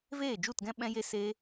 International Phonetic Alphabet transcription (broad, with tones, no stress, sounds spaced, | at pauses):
v eː˦˨ d͡ʒ u˦˨ t ɡ ɛ̃˦ ɓ ɛ̃˦ j e˦ s eː˦